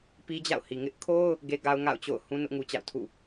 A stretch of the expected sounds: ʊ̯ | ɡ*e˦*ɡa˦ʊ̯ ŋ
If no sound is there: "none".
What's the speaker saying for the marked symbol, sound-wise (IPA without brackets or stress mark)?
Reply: e˦